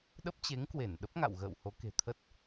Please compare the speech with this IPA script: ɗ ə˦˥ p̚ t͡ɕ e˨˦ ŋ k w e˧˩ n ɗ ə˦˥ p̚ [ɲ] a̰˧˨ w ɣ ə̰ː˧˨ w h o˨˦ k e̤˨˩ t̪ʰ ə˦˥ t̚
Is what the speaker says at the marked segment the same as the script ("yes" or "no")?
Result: no